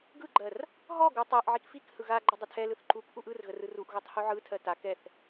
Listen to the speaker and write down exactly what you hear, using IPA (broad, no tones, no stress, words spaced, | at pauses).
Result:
ɡɯɡ͡ǃɜr | ɦɔɡu tˤɜʔʕik fik hɯɣaɡ͡ǃə dˤətʰɛlɯθ ǃuk ʔuʔɯrɣə rɯruʔɣutˤ huʕɯtʰɜ ta kɛθ